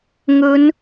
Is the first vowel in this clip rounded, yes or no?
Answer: yes